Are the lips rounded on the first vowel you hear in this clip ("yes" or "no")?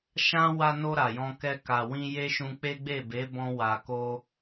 no